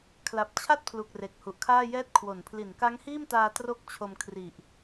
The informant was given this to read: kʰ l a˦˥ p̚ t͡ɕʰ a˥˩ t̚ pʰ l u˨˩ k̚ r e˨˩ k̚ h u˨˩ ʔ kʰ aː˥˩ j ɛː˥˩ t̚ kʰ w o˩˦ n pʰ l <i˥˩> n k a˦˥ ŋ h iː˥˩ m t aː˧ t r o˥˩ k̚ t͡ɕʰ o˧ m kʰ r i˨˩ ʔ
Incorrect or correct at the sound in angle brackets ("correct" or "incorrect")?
incorrect